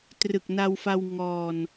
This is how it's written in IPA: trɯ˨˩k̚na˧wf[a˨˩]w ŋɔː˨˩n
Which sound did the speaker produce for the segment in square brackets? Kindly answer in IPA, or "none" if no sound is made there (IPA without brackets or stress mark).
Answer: a˧